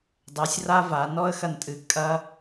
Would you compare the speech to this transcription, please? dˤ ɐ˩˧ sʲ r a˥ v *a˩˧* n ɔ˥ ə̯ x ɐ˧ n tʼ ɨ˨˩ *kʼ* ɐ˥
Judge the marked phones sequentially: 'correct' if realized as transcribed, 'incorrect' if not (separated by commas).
correct, correct